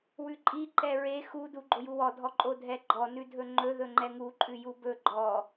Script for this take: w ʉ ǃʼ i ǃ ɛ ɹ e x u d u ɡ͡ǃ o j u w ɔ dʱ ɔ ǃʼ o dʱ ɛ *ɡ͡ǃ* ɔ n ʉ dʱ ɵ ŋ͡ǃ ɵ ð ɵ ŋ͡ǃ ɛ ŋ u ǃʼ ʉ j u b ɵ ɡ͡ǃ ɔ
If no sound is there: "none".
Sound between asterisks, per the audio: ɡ͡ǃ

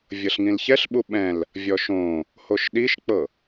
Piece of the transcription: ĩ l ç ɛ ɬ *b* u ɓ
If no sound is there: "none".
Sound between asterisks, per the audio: ɓ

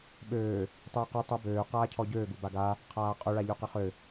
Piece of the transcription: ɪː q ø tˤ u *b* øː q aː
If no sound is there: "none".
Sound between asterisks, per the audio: b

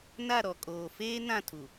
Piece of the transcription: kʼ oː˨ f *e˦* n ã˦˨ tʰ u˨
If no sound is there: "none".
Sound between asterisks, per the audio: eː˦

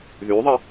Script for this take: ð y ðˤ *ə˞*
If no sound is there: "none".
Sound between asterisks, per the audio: ə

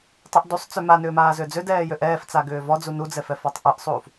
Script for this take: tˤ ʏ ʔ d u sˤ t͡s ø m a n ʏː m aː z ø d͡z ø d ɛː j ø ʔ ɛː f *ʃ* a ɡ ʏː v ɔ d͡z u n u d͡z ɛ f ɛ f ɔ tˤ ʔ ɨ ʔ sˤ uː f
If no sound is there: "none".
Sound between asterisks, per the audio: t͡s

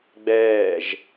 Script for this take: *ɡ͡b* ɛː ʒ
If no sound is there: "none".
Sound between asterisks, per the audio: ɡ͡b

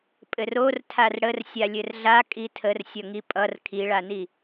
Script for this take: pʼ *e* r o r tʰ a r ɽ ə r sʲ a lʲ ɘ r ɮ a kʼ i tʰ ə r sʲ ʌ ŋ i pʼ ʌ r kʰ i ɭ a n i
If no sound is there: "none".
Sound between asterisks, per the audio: ɘ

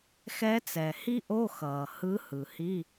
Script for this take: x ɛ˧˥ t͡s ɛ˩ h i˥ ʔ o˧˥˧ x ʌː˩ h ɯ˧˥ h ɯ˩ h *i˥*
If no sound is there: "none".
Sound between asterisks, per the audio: i˧˥˧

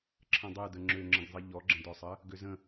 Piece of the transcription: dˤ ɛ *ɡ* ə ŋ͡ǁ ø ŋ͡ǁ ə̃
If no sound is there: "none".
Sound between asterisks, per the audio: d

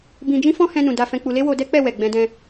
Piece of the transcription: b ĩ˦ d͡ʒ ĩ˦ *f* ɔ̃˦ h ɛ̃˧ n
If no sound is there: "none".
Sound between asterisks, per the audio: f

